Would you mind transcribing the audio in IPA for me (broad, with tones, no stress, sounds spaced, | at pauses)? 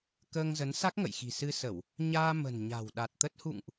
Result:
k əː˧ ŋ z ə˨˦ n s a˦˥ k̚ ŋ ə̰˧˨ j x i̤˨˩ s ɨ˧ s ə˧˩˨ w | ɲ aː˧ m ə̤˨˩ n ɲ a̤˨˩ w ɗ a˨˩ t̚ t̪ ə˦˥ t̚ h ṵ˧˨ ŋ ʔ